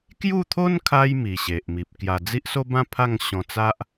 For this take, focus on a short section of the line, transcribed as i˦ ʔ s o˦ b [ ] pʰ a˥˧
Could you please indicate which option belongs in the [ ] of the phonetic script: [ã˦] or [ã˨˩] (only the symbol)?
ã˦